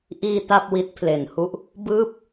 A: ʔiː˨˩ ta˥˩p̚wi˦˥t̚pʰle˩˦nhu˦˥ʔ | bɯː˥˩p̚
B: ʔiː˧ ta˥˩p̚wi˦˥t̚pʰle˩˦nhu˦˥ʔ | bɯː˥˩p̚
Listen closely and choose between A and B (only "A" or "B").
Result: B